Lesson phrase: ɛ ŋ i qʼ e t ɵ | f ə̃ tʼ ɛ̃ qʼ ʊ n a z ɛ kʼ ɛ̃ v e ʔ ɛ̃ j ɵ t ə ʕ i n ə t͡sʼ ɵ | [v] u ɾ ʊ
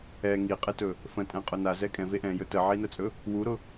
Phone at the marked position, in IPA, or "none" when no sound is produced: w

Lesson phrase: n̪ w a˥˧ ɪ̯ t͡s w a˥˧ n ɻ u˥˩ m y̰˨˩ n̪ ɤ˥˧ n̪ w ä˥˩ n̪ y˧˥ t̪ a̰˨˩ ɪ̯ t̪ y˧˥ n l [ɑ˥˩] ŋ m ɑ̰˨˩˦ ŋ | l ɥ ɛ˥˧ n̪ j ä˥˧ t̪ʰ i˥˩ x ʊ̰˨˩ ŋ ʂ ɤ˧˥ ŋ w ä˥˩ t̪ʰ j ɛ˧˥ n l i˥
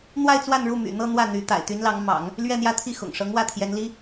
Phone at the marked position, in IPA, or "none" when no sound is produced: ɑ˧˥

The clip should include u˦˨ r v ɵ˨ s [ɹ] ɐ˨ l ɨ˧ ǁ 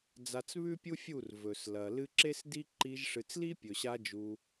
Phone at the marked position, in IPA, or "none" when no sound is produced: l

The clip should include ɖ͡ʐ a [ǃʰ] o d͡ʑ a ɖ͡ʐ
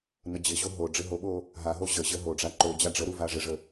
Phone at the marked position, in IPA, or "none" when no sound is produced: ǃ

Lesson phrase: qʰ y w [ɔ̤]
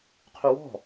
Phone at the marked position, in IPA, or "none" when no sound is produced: ɔ̤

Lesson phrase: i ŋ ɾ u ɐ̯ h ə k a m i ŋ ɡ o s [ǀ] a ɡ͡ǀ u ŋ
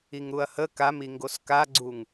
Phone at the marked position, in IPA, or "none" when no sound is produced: k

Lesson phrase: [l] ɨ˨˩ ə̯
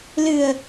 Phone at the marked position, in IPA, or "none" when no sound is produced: l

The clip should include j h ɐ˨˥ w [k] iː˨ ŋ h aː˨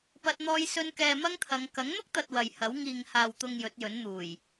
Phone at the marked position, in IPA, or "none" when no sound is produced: ŋ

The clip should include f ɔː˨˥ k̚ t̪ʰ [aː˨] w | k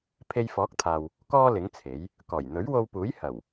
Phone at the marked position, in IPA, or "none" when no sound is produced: aː˨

